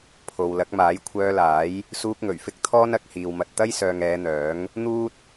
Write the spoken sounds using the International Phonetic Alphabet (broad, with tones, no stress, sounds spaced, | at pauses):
pʰ o˨ w l ɐ˨˥ k̚ m aː˨˥ j kʷʰ œː˧ l aː˨˥ j | s uː˧ k̚ ŋ ɵ˨˩ ɥ f ɪ˥ k̚ t̪ʰ ɔː˥ n ɐ˨˥ k̚ h iː˨ w m ɐ˧ t̚ t̪ ɐ˥ j s œː˨ ŋ ɛː˨˧ n̪ œː˨˥ ŋ | n̪ uː˥ t̚